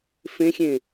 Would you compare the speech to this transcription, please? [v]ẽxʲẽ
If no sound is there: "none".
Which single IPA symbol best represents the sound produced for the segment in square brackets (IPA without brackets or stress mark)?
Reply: f